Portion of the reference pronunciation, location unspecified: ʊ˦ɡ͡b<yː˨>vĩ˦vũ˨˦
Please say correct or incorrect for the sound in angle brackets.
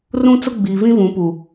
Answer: incorrect